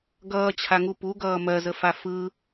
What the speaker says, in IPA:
ɡʌːt͡ɕʰaŋu puɡʌː mɜzəfa fɯ

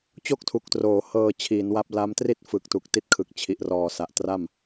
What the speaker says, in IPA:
t͡ɕo˥˩k̚tʰu˨˩k̚troː˩˦ hɤː˧t͡ɕʰiː˩˦nwa˦˥p̚ la˦˥mtri˥˩t̚ fɯ˨˩k̚tu˨˩k̚ ti˦˥t̚kʰɯ˨˩k̚t͡ɕʰi˨˩ʔrɔː˨˩ sa˨˩ʔtra˥˩m

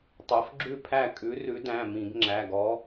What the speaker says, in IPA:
tˤo˨˦fɡ͡ǁʉ˥˨pʰæ˥˨ kʼʉ˨˦rʉ˨˦dæ̃˩˧˩ mĩ˧˩˧ɡŋ͡ǁæ˩˧˩ɡɔ˨˦

